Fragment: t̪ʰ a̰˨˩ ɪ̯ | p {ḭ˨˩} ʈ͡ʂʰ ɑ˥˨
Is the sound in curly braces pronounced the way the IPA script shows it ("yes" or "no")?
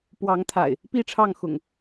no